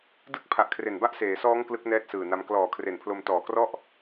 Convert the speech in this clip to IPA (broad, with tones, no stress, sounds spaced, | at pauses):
d ɯ˥˩ k̚ pʰ a˨˩ ʔ kʰ r e˨˩ n b a˥˩ ʔ s eː˩˦ s ɔː˦˥ ŋ k l ɯ˦˥ k̚ n ɛː˥˩ t̚ s ɯː˨˩ n a˦˥ m k l ɔː˨˩ kʰ r e˨˩ n pʰ l o˧ m t ɔː˨˩ k r ɔ˥˩ ʔ